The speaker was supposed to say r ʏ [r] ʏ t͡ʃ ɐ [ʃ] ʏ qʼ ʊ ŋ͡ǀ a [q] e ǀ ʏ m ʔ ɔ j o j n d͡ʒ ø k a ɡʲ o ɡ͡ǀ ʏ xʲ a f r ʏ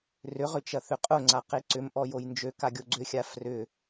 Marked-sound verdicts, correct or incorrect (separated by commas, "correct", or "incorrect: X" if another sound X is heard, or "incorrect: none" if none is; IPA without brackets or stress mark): incorrect: ʁ, incorrect: θ, correct